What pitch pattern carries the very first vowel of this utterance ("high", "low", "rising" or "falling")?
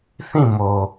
falling